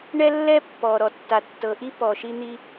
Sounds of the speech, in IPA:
ɳɛ˥lːɛ˥ pːɔ˩ ɾɔ˩tːa˩tːɤ˩ ʔi˥pɔ˩ ʃi˥n̪i˥

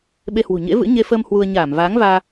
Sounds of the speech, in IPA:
ɓe˧hwṳ˨˩ ɲḛ˧˥vɨ̰˧˥ ɲe˧fəː˧m hwu˧ə̯ ɲaː˧˩mvaː˨˦ŋvaː˧

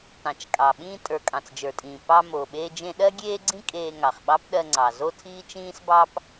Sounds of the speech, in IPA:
tɑ̃˩t͡ʃkʼɑ˩ ɓĩː˧tʼə˞˩ kʼɑ̃˩t͡sd͡ʒə˞˩tʼĩː˩ pɑ˧mo˩ɓe˧ d͡ʒẽ˧ɗɜ˥ɡʲeː˥ɡ͡ǀĩ˥ kʼeː˧ŋɑ˩χ ɓɑ˥pɗɜ˧ŋ͡ǀɑ˩ zo˥tʰiː˥t͡ʃĩː˥sbɑ˥p

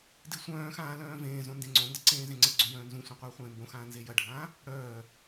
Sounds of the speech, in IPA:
disʷœ̃ːxãː lœ̃ːvẽːzõ ndẽŋ͡ǀõndə ǀẽːzẽŋ͡ǀəɡ͡ǀõ jœ̃ːnzũsʷœ̃ qʷœːχʷẽːmbõxãː nzejɐɖʱãː | ɽœː

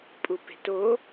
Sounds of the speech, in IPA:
pʼupe̤to

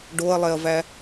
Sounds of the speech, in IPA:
ɖoɐ̯lˠɛɐ̯væ

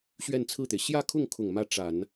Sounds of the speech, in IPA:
ɕɥɛ˥˧nt͡sʰɹ̩˥˩t̪e˩ɪ̯ ɕjä˥˧kʰʊ˥˩ŋkʰʊ˨˩ŋ mä˥˩ʈ͡ʂa˨˩˦n

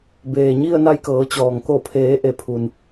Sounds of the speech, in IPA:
beː˩ɲi˥˨ə̯ na˧jkɤː˩˧t͡ɕɔː˩ŋ ko˧˩pʰeː˩˧ʔe˩ pʰu˩n

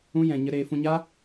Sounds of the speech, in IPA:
ũ˦jɛ̃˧ ɲə˧ɾeː˧fũ˧ ɲa˦

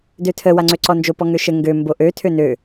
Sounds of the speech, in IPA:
døtʰə waŋ͡ǀøǀɔnd͡ʒo pɔŋøʃə ŋɡø mboʔø tʰønø

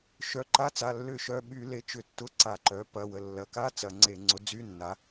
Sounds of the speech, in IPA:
ʃœ˩˥ǃa˧˥˧t͡sa˩˧˩ lːʏ˧˩˧ʃœ˩˧˩ ɓy˧˩˧le˩˥ t͡ʃʏ˧˩˧tːʊ˧˥˧ǀa˧˩˧ ǃœ˩˥ pɐ˩˧˩wə˩˧˩ lːɐ˩˥ka˧˥˧ t͡sɐ˧˩˧ŋ͡ǀe˧˩˧ ŋ͡ǀʊ˩˥d͡zy˧˥˧ nːa˩˥

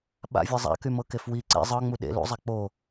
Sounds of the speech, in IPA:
ɓa̰vʲɤ zˤa̰kymɤkef wi ǀḛ zˤɤŋ͡mu ɗḛ lṵzˤa k͡po

